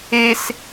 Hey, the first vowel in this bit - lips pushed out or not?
no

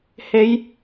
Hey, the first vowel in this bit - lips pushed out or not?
no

